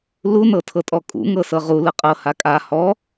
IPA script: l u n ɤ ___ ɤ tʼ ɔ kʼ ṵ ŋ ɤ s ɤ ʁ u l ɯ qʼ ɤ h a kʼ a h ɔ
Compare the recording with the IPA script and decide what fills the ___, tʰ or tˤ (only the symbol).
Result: tʰ